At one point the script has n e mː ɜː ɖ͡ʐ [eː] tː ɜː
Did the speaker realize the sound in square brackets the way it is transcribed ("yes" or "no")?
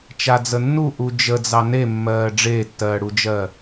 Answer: yes